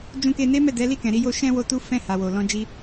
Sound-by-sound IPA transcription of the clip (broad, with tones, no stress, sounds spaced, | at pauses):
d͡ʒ ũ˧ k e˧ n e˦ m ɛ˦˨ d ɛ˨˦ l i˦˨ k ɛ̃˨ ɾ i˧ j o˧ ʃ ɛ̃˧ w o˧ t u˦ f ɛ̃˦˨ h a˨ w o˨ l ɔ̃˧ d͡ʒ i˧